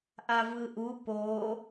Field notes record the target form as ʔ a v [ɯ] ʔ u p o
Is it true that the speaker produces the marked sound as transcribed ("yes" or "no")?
yes